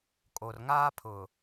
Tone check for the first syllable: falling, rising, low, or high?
low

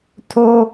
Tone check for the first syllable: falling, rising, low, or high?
high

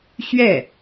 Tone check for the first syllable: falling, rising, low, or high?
falling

